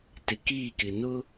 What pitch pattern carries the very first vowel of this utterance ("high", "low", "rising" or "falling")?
low